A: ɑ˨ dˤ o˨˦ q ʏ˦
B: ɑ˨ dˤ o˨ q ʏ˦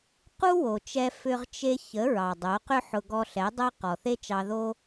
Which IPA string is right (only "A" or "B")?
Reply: A